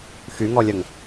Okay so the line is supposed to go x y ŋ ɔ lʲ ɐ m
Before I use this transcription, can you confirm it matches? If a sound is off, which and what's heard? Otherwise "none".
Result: m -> ŋ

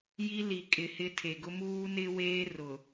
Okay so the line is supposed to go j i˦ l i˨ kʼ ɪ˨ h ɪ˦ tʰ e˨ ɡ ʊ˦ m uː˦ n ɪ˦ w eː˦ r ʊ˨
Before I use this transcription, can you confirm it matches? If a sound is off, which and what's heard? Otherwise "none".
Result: none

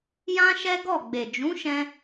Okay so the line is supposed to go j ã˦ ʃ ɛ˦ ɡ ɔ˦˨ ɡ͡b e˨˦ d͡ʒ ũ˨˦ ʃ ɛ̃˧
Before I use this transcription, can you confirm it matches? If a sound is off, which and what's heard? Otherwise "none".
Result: e˨˦ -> e˨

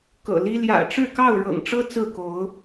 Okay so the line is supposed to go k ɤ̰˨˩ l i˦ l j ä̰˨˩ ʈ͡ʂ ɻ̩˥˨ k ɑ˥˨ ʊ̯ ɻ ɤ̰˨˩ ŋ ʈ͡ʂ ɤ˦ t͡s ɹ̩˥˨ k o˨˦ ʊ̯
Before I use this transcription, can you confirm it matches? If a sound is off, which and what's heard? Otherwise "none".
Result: none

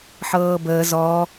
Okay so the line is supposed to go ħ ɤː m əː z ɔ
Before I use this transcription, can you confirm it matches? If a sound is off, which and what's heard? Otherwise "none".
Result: m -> b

